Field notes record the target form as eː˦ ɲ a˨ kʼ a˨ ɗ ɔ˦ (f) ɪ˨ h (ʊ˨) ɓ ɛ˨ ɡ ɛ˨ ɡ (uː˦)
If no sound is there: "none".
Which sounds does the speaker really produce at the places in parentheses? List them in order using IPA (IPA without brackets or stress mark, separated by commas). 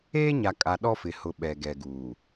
f, ʊ˨, uː˨